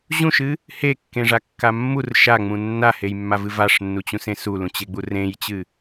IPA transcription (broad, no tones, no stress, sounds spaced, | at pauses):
ʑ ũ ʃ ɨ | h e kː ẽ ʐ a kː a mː u r ʃ a ŋ͡m ũ nː a h e j mː a v ɨ v a ʂ nː u t͡ɕ ũ s ẽ s u l ũ t͡ɕ e ɡ͡b u r ẽ j t͡ɕ ɨ